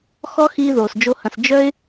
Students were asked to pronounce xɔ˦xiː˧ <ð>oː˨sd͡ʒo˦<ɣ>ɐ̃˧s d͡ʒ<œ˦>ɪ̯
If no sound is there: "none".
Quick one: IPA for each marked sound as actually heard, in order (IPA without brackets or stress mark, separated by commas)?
ð, h, œ˦